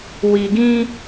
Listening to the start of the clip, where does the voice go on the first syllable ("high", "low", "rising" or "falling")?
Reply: low